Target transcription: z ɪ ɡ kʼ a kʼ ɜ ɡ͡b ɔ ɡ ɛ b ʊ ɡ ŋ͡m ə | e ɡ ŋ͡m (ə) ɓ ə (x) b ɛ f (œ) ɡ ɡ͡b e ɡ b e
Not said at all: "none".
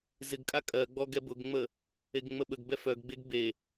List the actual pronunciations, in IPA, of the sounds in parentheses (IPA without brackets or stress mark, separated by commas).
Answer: ə, ɡ, œ